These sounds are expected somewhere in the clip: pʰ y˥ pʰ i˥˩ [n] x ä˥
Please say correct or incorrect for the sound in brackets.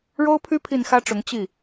correct